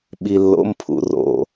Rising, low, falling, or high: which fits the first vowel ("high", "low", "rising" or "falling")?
low